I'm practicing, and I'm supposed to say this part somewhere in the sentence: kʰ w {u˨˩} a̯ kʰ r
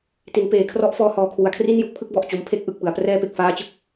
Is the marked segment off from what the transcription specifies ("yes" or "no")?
yes